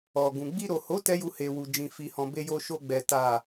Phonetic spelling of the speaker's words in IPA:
ɔ˨ ɡ ũ˨ ɡ͡b i˧ ɾ o˨ h o˨˦ t ɛ˦ j u˧ h e˨ w u˨ d͡ʒ ĩ˨ f i˨ h ɔ̃˨ b e˧ j o˧ ʃ o˧ ɡ͡b ɛ˨ t a˨

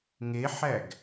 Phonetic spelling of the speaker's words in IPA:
ŋ e ħ æ ɡ

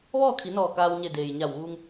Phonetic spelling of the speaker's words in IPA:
ʋ ɔː˥˨ kʰ i˩˧ n ɔː˧˩ k aː˧ w ɲ e˧˩ d eː˩ j ɲ a˧˩ w ʋ uː˧ ŋ

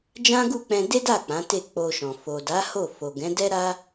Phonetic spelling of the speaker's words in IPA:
d͡ʒ ã˦ ɡ u˦˨ k͡p ɛ̃˧ d e˦ d a˦˨ k͡p ã˨˦ t e˦˨ k͡p o˧ ʃ ɔ̃˨ f o˨ d a˨˦ h o˦˨ f o˨ ɡ ɛ̃˨˦ d ɛ˦ ɾ a˦

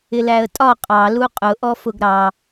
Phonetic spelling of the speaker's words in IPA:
ɪ l æ ə̯ tʼ ɒ qʼ ɑ l u qʼ ʊ ʔ ɔ f ʊ ɡ ɾ ɑ

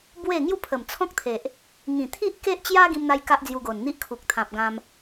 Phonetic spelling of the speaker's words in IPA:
b w e˥˧ ŋ j u˥˧ pʰ ə˨˩ m t͡sʰ ɔ̃˦ k̚ t̪ʰ e˨ ʔ | ŋ ĩ˨˩ t̪ʰ i˦ ʔ k e˦ ʔ t͡ɕ j a˦ ɡ ĩ˦ m n̪ a˦ j k a˦ ʔ d͡z j u˧ ɡ o˨˩ n n̪ i˦ ʔ kʰ u˨ k̚ t̪ʰ ã˨ p̚ ɡ ã˧ m

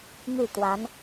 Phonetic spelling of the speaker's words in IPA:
m y˥˩ t̪ w a˧˥ n

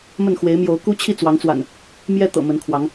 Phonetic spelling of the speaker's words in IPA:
m ə˥˨ n x w e˨˦ ɪ̯ m j o˨˦ ʊ̯ k u˦ t͡ɕʰ i˥˨ t͡s w ɑ˨˦ ŋ t͡s w a̰˨˩ n | m j ɛ˦ t̪ ɤ̰˨˩ m ə˨˦ n kʰ w ɑ˨˦ ŋ

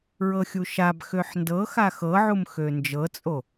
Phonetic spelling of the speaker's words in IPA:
ɹ ɤ xʲ u ʃ a b x ø ħ n d ɤ x a x ɤ ʕ u m x ø n d͡ʒ ɤ t͡sʼ o

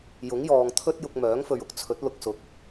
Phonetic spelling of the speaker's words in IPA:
j ʊ˨˥ ŋ j ɔː˨ ŋ t̪ʰ ɵ˥ t̚ j ʊ˧ k̚ m œː˨˥ ŋ f ɵ˨ ɥ ʊ˨ k̚ t͡sʰ ɵ˨˥ t̚ l ʊ˨ k̚ s ʊ˨˥ k̚

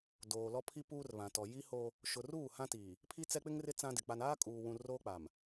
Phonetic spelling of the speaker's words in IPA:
d oː˨ l ɔ˦ pʰ i˦ p uː˦ r β ã˨ t ɔ˨ j i˦ h oː˦ | ʃ ʊ˨ r uː˦˨ h ã˦ t iː˨ | pʰ i˦ t͡s ɛ˦ k͡p ɪ˦ ŋ r ɪ˦ t͡s ã˦ d ɪ˨ k͡p a˨ n aː˦ kʼ uː˨ w ũ˨ r oː˦ k͡p aː˨ m

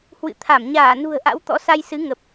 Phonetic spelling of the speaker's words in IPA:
h w ɨ̰˧˨ t̪ʰ a˧˩ m ɲ aː˧˩ n ṳ˨˩ ə̯ ʔ a̰˧˥ w t̪ ɔ̰˧˥ s a˧ j s ɨ˨˦ ŋ ə˨˩ p̚

